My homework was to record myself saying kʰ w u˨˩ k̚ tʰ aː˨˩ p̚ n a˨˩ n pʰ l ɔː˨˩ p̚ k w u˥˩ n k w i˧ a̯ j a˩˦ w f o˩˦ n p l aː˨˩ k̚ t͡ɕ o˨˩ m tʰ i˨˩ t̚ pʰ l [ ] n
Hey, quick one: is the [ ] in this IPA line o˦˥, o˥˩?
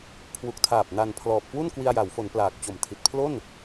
o˥˩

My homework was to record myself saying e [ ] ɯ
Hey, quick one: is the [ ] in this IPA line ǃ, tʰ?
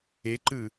ǃ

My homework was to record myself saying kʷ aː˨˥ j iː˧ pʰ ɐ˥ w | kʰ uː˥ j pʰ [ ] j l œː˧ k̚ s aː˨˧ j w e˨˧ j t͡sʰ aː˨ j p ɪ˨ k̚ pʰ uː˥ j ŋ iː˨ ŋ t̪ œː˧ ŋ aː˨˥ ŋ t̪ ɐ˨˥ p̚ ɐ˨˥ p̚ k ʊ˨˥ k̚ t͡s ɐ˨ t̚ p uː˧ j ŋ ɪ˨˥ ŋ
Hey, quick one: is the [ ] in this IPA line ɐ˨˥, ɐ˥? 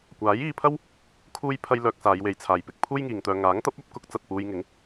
ɐ˥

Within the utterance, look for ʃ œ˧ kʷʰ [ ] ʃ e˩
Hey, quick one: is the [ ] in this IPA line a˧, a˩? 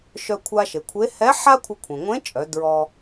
a˧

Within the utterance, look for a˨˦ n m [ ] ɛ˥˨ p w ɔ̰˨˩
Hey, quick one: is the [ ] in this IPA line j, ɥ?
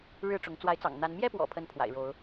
j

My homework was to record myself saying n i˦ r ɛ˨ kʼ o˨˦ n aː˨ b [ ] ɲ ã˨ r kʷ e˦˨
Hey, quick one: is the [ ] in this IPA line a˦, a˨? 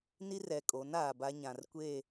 a˦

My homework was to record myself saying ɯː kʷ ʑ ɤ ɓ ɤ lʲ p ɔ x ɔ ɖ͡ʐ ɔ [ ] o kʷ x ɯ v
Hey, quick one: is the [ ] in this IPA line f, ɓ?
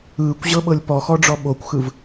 ɓ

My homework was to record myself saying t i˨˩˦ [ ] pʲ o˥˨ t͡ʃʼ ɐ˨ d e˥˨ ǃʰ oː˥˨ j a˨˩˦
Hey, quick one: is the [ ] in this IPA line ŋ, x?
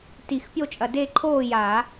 x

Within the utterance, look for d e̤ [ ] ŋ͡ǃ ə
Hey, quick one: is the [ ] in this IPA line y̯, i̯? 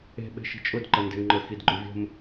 y̯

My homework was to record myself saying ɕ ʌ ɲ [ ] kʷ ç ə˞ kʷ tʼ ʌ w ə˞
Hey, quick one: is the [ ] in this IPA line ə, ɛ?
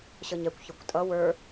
ɛ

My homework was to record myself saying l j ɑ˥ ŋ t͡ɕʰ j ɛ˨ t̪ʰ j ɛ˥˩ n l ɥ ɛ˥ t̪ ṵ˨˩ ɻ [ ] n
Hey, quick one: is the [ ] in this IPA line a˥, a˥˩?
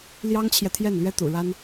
a˥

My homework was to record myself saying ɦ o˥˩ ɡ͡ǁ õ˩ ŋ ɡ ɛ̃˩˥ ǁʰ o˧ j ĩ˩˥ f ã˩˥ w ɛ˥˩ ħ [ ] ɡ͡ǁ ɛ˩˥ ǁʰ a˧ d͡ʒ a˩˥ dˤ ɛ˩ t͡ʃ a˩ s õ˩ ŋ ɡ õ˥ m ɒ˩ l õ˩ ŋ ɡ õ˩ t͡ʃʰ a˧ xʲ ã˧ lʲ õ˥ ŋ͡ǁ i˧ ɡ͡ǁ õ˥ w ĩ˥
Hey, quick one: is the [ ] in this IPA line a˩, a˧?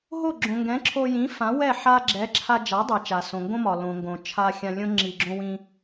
a˧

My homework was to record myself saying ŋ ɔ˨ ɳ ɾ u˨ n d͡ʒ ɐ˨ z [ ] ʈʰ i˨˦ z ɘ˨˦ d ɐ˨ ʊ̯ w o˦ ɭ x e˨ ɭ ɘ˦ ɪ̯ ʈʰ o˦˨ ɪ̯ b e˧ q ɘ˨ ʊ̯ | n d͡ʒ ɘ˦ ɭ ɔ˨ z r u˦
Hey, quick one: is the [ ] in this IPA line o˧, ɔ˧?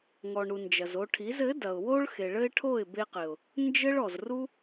o˧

